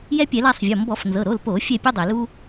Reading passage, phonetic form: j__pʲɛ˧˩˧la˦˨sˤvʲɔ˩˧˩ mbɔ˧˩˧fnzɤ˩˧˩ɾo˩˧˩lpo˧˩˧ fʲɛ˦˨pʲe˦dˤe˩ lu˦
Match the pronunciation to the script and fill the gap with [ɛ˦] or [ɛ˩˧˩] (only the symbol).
ɛ˦